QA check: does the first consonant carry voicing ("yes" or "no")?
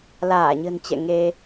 yes